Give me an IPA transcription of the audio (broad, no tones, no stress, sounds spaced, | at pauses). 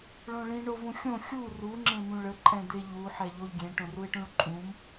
ɭ õ ɭ ĩ ɳ o v ũ xʲ õ xʲ u r u ŋ͡ǁ ẽ m ũ ɭ ə ǃʼ ɛ̃ d̪ e ʎ u ħ ɛ ʎ o ʎ ɡʲ ẽ ʈ õ r u e̯ ʈ ũ ɭ ǃʼ ũ m